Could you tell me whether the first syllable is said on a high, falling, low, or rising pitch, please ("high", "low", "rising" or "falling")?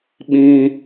high